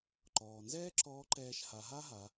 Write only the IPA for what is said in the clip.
ǃɔː˩nzɛː˥ ǁɔː˧˥ǃɛː˧ʃ ha˩˧ɦa˥ɦa˩˧

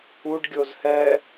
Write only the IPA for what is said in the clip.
uɖ ɡʲozhɛ

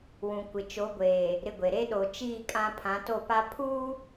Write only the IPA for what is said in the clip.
wũ˨ kʷɪ˨t͡ʃo˨˦ɡʷeː˨ | ɾɪ˦ɡʷe˨ ɾe˦ ɗo˨t͡ʃiː˦˨ kʼã˦pʰã˨˦to˦˨pa˦ pʰu˦

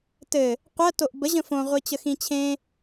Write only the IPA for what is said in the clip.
tɘ | qʷɜ toʔbə ʑə̃fõ ʁʷit͡ɕəxĩt͡ɕʰẽ

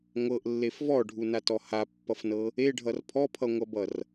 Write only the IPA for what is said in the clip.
ŋʷɤʔlːef vɔɖʱunatɔ hapːʌfnɤ | eɖʱʌr pʰɔpʰʌŋʷʌbʌr

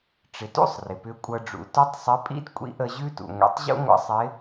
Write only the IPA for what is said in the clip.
ʈ͡ʂɪ˩˧tṵ˥sˤ rɪ˩pʏ˧˥kʷʼɤ˧ɖ͡ʐṵ˩˧ tʏ˧˥tˤ sˤɪ˧˥pʼḭ˥d kʷʼḭ˧˥ ʔə˧ ʑʉ˥ tṵ˩ŋʷḭ˩˧tˤ ʑṵ˥ŋʷə̰˧˥ sˤɪ˧˥

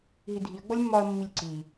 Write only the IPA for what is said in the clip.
ɦidʱiɐ̯ ɡ͡bɔlʲmːɒɐ̯ mːilʲǀi

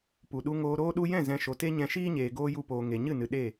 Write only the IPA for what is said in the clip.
pu˨ɗu˧ŋoː˧ ɾoː˧ɗu˧jɛ̃˦˨ zɛ̃˧ ʃo˨te˦ɲɛ̃˧ ʃiː˦ɲeː˨ ɡoː˧ ju˧poː˨ ŋe˨ ɲɨ˦˨nɨ˨ ɗe˦˨

